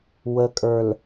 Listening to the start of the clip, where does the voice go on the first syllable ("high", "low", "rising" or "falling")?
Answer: low